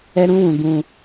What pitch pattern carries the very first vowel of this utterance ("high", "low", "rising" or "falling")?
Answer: high